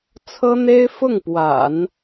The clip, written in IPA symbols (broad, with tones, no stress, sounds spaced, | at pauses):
t͡sʰ ɤ˥ n̪ e˥ ɪ̯ f ʊ˥˩ ŋ p w a̰˨˩˦ n